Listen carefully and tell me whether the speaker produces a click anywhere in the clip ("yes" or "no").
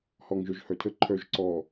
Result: yes